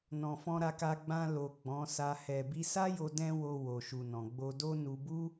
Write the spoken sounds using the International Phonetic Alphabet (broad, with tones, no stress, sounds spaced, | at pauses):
n ɔ̃˨ f ɔ̃˧ ɾ a˧ k a˧ ɡ͡b ã˧ l o˨ ɡ͡b ɔ̃˨˦ s a˧ h ɛ˨ b i˧ s a˦ j o˧ d ɛ̃˦ w o˧ w o˨ ʃ u˨ n ɔ̃˨ ɡ͡b o˧ d o˦ n u˧ b u˦